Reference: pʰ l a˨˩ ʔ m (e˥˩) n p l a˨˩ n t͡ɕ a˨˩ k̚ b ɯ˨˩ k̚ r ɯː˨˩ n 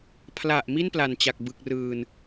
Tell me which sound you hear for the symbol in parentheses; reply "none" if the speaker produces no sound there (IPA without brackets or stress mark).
i˥˩